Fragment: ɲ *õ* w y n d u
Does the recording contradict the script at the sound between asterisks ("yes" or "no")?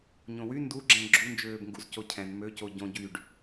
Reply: no